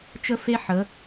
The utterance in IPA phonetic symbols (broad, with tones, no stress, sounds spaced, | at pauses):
t͡ʃ ə˦ f e˦ ħ ə˨˦